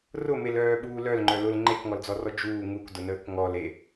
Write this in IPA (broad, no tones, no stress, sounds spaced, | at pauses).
r ʊ m e l œː ɓ uː l œ l ŋ͡ǃ œ l ʊ l ŋ͡ǃ e k ŋ ɔ l d͡z ɔ r ɔ d͡ʒ uː ŋ u k d ʊ n əː k ŋ ɔ l e